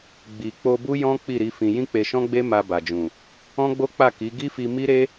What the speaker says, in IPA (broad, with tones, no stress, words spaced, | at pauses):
ɡ͡bi˨k͡po˧bu˦ jɔ̃˦ k͡pi˦˨ɾi˨˦fĩ˧ jĩ˦k͡pe˧ʃɔ̃˦ɡ͡be˦ ma˧ba˨d͡ʒũ˨ | ɔ̃˦ɡ͡bo˦k͡pa˦˨ki˨˦ ɡi˦fi˧ mi˦ɾe˦